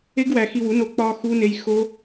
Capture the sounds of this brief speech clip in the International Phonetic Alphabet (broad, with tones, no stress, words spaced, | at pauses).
e˦ɡwæ˧ xi˧wu˨˦ no˧ k͡pɒ˧ xu˦ne˦j xo˦